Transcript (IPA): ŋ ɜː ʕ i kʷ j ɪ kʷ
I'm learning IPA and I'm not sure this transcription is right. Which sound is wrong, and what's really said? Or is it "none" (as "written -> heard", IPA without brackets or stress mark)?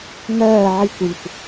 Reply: ɪ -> i